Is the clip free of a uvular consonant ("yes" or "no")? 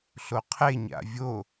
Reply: no